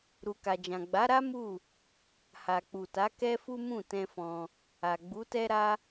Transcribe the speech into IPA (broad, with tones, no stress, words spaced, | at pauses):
ɾu˨ka˨ d͡ʒã˨ɡ͡ba˨˦ɾa˦ mu˦˨ | ha˨k͡pu˨ta˨˦ kɛ˦fu˦ mũ˦˨ tɛ̃˧fɔ̃˧ | a˨ ɡ͡bu˨˦tɛ˦ɾa˦